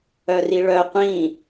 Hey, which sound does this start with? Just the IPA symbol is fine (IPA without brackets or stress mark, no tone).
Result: œ